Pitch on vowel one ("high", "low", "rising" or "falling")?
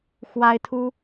high